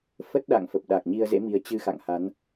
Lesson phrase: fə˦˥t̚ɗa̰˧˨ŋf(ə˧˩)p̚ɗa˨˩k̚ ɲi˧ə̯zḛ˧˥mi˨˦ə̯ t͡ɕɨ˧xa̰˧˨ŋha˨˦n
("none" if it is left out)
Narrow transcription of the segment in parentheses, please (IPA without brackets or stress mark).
ə˨˩